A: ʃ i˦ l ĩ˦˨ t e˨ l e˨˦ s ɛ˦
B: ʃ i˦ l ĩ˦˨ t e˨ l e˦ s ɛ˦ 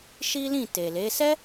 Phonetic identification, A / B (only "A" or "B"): A